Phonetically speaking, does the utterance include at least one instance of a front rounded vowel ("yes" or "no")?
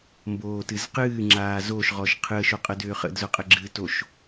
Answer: yes